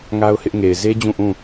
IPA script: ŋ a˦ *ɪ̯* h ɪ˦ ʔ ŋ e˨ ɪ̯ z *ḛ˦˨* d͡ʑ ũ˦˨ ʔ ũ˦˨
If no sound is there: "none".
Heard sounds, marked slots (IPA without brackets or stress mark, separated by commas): ʊ̯, e˦